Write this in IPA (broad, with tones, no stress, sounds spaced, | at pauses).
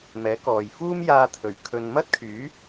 m ɛː˨˥ k ɔː˨ j f uː˥ m j aː˧ t̪ʰ ɵ˨˩ ɥ kʰ ɵ˨ n m ɐ˥ t̚ kʰ yː˨˥